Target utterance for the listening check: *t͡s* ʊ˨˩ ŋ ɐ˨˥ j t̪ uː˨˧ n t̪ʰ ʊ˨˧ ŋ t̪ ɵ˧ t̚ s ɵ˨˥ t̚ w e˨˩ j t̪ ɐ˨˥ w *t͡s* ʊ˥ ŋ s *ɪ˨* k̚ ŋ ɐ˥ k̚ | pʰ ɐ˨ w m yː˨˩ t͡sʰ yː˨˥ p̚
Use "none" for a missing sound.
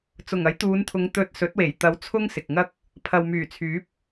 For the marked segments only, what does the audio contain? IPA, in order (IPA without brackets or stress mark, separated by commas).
t͡s, t͡sʰ, ɪ˨